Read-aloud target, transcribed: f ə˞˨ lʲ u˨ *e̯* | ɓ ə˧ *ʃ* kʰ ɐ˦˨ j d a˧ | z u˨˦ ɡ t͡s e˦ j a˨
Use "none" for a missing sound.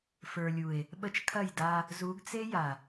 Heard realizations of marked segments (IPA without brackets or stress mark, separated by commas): e̯, t͡ʃ